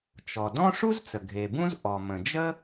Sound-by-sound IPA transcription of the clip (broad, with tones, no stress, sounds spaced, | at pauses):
t͡ʃ ɔ˩ d ɔ̃˥ ʂ u˥ z t͡s ə˩ ɡʱ e˩ b ũ˥ z ʔ ɔ˩ m ə̃˩ d͡ʒ ə˥